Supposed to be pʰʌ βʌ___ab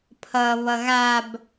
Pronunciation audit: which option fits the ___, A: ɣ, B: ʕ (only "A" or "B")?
A